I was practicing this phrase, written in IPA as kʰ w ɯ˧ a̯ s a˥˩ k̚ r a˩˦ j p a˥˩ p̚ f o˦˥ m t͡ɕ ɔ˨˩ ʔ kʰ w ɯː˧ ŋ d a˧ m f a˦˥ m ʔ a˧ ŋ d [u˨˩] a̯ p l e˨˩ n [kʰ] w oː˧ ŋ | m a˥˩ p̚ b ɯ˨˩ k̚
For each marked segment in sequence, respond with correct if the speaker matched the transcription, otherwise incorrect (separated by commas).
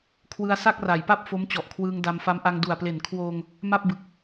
correct, correct